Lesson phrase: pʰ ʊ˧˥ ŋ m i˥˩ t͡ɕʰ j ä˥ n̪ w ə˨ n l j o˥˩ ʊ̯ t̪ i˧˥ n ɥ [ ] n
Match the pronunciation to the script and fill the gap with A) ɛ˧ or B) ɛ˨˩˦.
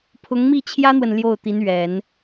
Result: B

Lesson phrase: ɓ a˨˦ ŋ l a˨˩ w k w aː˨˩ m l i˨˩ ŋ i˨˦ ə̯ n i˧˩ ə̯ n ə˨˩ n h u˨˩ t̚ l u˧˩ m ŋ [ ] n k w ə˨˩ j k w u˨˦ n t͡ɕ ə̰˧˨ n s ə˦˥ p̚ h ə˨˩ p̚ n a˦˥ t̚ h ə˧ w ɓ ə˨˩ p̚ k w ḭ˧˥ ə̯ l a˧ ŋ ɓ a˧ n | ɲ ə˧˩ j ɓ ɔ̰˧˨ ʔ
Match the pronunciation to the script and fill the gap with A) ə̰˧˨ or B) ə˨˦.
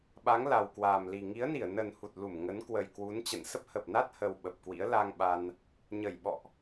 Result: B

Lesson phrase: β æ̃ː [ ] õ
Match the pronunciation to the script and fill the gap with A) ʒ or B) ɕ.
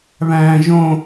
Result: A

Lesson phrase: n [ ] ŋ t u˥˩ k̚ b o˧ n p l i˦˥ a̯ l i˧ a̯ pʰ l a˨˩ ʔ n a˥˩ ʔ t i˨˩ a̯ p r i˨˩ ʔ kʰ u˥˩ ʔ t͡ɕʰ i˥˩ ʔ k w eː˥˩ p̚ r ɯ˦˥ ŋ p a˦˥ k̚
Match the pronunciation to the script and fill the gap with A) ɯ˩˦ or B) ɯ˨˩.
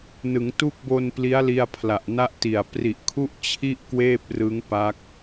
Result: A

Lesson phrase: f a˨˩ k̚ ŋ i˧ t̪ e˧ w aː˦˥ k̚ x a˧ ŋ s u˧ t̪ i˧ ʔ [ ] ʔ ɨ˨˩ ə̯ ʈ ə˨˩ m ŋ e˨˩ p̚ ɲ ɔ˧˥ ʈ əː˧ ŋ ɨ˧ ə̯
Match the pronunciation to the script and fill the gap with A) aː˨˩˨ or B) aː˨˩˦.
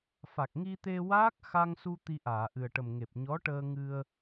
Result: A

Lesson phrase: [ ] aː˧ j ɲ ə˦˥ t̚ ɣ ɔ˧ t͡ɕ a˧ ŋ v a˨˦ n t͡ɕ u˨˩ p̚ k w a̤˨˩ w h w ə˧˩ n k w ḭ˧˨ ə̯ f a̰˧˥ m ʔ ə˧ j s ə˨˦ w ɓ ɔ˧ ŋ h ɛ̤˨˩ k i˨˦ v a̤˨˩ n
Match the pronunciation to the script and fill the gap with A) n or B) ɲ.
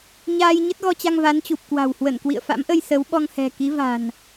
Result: B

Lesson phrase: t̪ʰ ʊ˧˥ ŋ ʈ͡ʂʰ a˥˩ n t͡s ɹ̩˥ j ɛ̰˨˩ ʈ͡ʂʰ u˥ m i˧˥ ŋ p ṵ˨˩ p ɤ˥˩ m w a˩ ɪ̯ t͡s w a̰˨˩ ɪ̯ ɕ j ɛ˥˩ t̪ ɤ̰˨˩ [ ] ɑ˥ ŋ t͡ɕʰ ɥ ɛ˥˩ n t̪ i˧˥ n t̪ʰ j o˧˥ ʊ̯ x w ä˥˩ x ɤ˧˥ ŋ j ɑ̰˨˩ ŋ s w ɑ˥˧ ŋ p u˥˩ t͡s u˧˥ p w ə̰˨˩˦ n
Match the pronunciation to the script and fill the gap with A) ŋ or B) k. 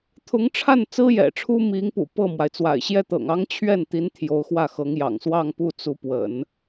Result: A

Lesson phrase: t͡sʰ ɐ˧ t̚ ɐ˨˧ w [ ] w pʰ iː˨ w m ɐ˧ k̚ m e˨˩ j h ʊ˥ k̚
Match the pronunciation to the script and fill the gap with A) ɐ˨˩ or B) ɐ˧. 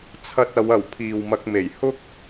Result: A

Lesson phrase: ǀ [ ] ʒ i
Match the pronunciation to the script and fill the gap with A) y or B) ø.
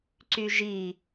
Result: A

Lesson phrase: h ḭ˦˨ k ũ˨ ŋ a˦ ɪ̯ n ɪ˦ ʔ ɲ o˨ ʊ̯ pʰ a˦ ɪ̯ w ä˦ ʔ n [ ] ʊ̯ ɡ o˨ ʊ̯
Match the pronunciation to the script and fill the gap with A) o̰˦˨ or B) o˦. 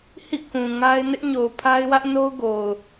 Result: B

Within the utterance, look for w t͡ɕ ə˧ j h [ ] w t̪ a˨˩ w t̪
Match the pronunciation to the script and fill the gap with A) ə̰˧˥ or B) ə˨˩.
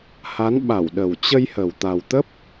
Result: B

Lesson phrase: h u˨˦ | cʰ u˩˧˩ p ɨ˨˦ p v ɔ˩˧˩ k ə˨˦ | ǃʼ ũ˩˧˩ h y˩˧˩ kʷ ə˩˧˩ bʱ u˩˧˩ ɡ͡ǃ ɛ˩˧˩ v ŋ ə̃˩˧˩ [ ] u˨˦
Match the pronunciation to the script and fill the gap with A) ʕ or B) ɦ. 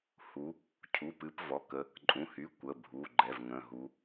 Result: B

